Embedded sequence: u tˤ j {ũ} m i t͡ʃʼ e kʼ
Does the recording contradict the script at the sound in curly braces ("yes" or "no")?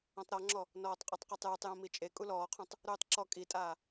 yes